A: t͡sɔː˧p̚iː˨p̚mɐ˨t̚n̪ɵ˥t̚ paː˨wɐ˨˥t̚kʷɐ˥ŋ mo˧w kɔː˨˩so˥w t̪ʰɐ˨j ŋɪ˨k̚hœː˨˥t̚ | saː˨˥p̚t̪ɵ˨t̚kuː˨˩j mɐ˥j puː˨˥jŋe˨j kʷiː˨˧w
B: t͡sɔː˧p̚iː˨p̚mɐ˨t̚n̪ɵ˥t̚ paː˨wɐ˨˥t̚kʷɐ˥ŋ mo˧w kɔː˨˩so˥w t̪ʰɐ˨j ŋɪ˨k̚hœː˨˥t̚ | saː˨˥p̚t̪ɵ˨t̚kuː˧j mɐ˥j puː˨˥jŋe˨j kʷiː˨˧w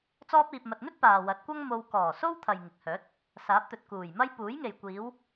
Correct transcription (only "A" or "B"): A